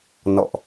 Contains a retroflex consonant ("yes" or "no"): no